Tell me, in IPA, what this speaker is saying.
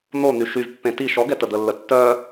n̪ o n̪ y ʃ y v pː ẽ t i ʃ ɔ ɡ ɛ t ə d̪ ə lː ə tː œ

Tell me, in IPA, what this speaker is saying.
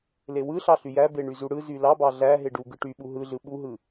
l e w ɯ ɬ ɑ ɬ y j æ b e ɳ y z u ɽ ɯ z y l ɑ b ɑ ɮ æ ɦ e ɖ u ɡ ɯ ʈ y ɓ u ɦ ɯ ɮ ɯ ɓ u ɦ ɯ

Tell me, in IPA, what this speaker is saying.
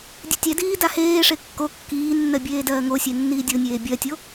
dʲ e tʲ ɛ d iː d a h eː ʂ e kː o kː iː nː ɜ bʲ eː d ɜː ŋ o sʲ e nː iː dʲ o nʲ eː bʲ ɜ tʲ o

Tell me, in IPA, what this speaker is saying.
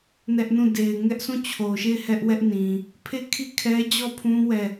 n ɛ˦ ʔ n ũ˦˨ d e˨ ɪ̯ ŋ ɛ˦ ʔ s ũ˦˨ t͡ɕʰ o˨ ʃ e˦˨ ɪ̯ h ɛ˦ ʔ w ɛ˦ ʔ n ĩ˨ | pʰ e˦˨ kʰ i˦˨ kʰ ɛ˦ d͡ʑ ɔ˦˨ pʰ ũ˦ w ɛ˦˨

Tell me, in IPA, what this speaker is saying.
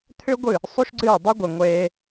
t̪ʰ ʏ˦ ɡʷ ɨ˦˨ | sˤ u˦ ʃ ɡ͡ǀ ɨː˦˨ dˤ ʏ˦ ɡʷ e˨ ŋʷ eː˧

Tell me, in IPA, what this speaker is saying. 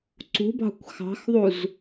ǀ ṳ b ɑ̤ kʷ x ɑ̤ x ðˤ u z

